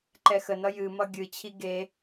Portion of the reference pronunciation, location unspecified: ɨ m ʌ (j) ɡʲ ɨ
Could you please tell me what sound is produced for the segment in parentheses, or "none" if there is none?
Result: none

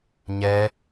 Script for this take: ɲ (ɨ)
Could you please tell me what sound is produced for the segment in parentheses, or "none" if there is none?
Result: ɛ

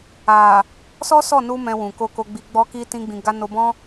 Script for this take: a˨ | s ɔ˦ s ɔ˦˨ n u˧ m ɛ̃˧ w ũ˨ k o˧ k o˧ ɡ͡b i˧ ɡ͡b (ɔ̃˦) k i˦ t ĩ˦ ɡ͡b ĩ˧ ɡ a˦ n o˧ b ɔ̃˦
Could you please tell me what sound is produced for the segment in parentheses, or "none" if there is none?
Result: ɔ˦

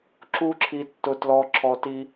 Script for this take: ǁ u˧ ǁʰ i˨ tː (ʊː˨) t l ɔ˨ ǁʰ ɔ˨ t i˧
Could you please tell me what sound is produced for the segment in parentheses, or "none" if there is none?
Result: ʊ˨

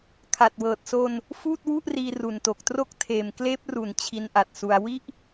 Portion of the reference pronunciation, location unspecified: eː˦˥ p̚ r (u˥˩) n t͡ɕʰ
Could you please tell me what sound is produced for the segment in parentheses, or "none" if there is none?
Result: u˩˦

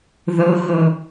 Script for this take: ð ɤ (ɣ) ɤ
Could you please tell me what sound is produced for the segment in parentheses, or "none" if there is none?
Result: ɣ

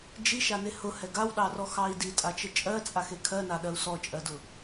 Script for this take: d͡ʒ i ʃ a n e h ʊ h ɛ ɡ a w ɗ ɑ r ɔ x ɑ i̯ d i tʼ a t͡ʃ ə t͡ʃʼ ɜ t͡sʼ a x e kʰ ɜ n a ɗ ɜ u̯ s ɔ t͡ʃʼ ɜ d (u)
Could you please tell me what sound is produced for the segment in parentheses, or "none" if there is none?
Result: ʊ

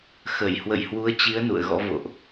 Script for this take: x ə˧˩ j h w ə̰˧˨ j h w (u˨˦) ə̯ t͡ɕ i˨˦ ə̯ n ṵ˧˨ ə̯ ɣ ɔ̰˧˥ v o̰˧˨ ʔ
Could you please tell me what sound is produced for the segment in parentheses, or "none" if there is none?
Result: u˨˦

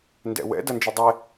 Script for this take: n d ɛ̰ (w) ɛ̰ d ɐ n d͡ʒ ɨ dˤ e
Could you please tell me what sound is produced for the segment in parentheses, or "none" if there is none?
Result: w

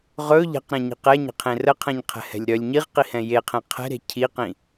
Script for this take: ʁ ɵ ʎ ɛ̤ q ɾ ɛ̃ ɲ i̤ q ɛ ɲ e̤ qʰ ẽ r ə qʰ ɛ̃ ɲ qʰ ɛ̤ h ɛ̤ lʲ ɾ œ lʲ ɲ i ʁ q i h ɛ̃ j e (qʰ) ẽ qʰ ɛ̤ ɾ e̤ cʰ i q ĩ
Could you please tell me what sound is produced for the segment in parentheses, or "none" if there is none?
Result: qʰ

